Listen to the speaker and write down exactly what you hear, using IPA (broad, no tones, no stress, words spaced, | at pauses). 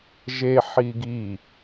ʒe ħiɡi